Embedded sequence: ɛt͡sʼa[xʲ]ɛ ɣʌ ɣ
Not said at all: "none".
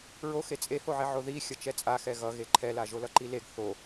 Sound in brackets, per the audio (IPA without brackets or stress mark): x